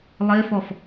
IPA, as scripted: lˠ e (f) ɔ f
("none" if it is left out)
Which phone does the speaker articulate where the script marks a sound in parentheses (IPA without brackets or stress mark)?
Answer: f